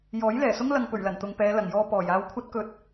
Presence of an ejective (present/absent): absent